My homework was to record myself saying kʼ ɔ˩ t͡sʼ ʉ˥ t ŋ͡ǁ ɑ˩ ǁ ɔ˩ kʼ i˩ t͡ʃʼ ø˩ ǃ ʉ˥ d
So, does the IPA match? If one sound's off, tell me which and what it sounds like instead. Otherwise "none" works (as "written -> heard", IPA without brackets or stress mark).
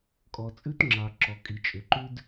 none